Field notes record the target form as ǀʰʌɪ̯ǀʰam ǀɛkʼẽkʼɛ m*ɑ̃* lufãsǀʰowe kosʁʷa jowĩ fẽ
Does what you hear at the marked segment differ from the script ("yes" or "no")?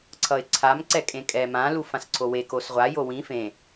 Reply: yes